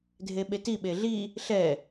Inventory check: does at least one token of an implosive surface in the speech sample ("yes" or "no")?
yes